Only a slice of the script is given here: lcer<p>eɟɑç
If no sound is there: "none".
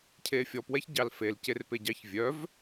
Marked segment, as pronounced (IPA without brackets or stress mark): p